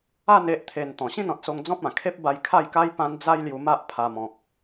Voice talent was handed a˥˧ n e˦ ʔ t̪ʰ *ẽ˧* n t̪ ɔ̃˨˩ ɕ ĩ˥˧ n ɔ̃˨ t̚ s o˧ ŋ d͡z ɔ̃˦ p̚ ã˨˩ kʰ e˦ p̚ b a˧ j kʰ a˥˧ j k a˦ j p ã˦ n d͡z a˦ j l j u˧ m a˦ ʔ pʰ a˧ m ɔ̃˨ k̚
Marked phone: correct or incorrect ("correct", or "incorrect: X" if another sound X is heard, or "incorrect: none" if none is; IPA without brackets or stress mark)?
incorrect: e˧